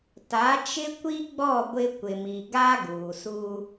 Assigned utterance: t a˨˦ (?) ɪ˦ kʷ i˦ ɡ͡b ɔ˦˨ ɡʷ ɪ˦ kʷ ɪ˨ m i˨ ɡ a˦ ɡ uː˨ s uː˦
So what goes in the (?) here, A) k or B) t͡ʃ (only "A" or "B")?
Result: B